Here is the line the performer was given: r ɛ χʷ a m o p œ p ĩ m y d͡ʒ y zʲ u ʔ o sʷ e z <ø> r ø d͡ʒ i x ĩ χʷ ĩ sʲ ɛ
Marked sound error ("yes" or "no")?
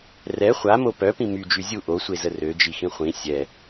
yes